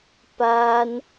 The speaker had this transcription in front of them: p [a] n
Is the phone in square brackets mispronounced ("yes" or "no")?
no